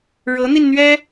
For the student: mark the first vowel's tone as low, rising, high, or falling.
rising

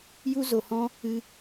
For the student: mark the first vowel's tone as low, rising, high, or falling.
high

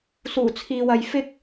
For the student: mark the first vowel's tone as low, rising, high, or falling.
low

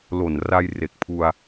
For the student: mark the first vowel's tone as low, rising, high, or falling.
low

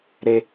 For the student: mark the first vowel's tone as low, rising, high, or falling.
high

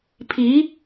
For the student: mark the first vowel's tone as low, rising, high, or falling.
rising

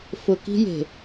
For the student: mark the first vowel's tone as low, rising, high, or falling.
low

